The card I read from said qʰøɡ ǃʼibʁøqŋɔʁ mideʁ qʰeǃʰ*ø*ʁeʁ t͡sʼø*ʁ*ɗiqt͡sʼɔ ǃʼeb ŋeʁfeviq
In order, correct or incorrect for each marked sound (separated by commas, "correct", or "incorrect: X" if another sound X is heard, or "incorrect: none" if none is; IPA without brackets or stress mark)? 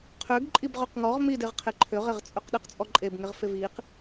correct, incorrect: q